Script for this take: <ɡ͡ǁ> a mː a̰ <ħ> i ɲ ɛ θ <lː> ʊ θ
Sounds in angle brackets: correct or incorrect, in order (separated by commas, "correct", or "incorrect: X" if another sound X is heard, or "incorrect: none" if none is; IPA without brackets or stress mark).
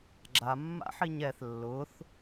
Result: correct, correct, correct